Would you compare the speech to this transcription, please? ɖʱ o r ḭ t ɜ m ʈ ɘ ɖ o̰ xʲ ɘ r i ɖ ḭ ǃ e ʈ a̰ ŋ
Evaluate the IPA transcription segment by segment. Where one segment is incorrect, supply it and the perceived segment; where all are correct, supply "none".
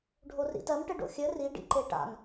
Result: none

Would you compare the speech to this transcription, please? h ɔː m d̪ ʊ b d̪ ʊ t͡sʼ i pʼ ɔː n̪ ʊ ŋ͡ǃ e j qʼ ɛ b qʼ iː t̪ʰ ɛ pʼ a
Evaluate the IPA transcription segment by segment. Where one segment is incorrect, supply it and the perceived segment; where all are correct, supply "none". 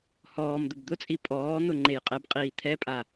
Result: none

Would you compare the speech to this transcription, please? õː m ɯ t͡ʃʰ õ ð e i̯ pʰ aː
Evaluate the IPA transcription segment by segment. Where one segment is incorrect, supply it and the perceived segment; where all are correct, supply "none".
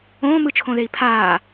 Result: none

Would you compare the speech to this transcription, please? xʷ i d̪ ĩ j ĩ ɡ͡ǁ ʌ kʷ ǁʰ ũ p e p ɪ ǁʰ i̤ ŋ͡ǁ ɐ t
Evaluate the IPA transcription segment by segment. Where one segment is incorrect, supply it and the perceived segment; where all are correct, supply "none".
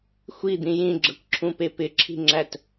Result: ɐ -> æ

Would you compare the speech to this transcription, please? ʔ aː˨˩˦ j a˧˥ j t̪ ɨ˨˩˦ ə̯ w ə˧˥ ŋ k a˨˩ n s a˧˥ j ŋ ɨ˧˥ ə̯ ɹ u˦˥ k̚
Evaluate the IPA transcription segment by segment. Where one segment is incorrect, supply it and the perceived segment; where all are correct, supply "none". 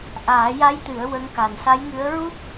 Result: none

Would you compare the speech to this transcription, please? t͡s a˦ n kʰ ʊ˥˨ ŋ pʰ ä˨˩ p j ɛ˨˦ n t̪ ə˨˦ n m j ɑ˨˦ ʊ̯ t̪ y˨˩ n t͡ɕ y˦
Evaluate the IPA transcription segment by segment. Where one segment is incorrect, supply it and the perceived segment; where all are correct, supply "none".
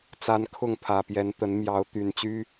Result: none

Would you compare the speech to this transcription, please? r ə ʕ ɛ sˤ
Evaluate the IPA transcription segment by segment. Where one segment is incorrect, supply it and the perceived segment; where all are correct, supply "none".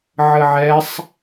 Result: r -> ʕ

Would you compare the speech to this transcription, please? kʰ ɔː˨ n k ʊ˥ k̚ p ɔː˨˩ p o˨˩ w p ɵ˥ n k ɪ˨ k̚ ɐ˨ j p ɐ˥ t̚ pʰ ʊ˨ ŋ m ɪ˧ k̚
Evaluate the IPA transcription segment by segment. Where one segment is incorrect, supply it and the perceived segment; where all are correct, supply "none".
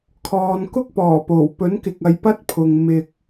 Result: ɵ˥ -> ɵ˨˥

